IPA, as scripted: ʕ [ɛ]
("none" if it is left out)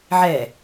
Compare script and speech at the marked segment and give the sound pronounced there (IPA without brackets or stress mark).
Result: ɛ